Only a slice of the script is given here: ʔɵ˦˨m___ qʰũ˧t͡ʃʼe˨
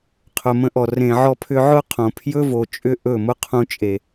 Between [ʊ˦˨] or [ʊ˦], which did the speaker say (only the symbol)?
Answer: ʊ˦